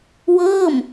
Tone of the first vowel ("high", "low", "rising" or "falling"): falling